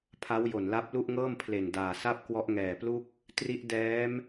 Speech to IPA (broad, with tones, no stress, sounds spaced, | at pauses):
pʰ a˦˥ w j o˨˩ n l a˦˥ p̚ l u˥˩ ʔ ŋ ɤː˥˩ m pʰ l e˨˩ n d aː˨˩ s a˥˩ p̚ k w ɔ˦˥ ʔ ŋ ɛː˨˩ p l u˥˩ k̚ | t r i˦˥ ʔ d ɛː˦˥ m